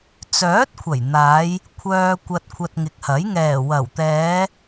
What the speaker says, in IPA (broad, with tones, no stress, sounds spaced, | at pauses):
t͡s œː˨˥ t̚ kʷʰ ɐ˨˩ j n̪ aː˨˧ j | kʷʰ œː˧ kʷ ɐ˧ t̚ kʷʰ ɐ˧ t̚ ŋ ɪ˨˥ k̚ h ɐ˨˥ j ŋ ɛː˨˩ w ɐ˨˩ w t̪ ɛː˨˧